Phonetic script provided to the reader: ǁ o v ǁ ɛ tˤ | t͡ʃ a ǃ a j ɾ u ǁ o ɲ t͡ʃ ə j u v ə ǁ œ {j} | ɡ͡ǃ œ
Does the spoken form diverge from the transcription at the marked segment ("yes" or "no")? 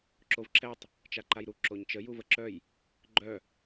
no